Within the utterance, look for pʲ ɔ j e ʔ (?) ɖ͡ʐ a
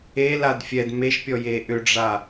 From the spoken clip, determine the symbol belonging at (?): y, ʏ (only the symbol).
ʏ